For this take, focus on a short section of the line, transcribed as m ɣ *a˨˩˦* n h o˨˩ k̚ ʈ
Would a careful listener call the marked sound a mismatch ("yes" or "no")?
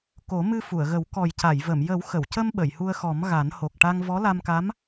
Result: no